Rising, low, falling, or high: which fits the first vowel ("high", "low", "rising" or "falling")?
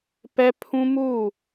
high